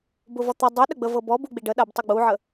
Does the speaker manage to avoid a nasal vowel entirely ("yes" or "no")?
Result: yes